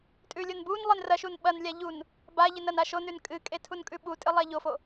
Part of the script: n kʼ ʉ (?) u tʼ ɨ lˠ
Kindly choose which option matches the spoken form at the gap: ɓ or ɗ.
ɓ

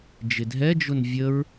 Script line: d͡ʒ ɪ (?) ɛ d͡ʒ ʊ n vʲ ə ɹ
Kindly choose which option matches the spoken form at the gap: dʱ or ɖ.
dʱ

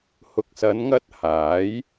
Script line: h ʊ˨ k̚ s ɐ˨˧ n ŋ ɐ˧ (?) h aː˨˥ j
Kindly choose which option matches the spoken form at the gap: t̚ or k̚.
t̚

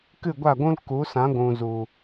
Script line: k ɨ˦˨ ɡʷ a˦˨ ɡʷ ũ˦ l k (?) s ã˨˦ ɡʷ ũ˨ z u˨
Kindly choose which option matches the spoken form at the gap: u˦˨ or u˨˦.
u˨˦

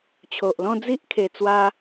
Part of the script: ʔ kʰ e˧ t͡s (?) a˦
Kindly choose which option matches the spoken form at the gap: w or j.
w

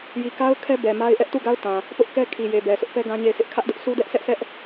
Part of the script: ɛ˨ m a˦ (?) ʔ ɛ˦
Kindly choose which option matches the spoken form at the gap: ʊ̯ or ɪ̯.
ɪ̯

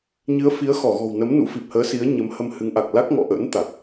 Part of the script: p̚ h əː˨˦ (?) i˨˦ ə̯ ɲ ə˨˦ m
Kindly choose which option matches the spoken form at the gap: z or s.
s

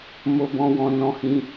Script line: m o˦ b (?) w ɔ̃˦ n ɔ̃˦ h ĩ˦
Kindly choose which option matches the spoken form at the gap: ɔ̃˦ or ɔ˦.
ɔ̃˦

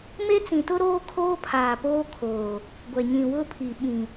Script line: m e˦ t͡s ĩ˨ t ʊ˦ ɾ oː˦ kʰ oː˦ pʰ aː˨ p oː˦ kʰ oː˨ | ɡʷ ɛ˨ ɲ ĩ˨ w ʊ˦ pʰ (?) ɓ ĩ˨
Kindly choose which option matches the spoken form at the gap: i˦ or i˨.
i˨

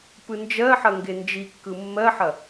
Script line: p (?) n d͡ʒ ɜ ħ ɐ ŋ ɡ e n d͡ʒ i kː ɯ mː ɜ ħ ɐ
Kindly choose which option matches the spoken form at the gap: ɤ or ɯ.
ɯ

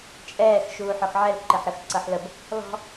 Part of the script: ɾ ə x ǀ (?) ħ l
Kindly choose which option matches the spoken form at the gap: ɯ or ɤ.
ɤ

